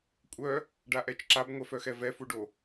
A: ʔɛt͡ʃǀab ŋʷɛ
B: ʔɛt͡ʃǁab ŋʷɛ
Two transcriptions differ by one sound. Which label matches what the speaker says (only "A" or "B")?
B